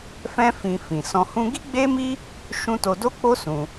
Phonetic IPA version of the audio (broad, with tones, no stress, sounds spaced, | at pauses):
f ɛ̃˦ f ĩ˧ f ĩ˨ s ɔ̃˧ h ũ˦ ɡ i˦ ɡ͡b e˦ m i˦ | ʃ ũ˧ t o˧ d o˦ k͡p o˦ s ũ˧